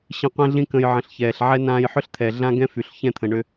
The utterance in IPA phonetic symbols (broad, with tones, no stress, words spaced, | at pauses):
ɕĩ˧qʷɛ̃˦ɮĩ˦kə̃˧j ʕə̃˨ɬçɛː˨ɬʕɛ˦ nãː˧jħʏ˦ɬt̪ʰɛ˨ ɮã˦ɡɛ̃˦fy˨ɬ çɛ̃˦˨t̪ʰə̃˨ ɳʏ˧